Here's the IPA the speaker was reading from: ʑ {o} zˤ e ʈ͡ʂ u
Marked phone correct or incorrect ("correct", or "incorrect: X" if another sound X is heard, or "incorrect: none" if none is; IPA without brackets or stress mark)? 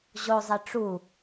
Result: correct